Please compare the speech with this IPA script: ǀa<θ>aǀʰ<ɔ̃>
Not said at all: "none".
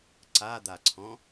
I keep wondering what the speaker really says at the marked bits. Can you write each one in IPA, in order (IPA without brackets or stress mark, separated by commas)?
d̪, ɔ̃